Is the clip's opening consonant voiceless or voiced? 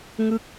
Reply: voiced